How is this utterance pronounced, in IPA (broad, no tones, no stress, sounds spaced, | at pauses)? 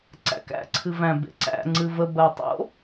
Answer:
ǀ æ̰ k æ̰ ǀʰ ɨ v æ̃ b ḛ ǀ æ̰ ŋ͡ǀ ɨ v ə b ɜ tˤ o̰